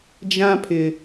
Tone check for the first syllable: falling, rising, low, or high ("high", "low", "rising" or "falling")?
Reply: high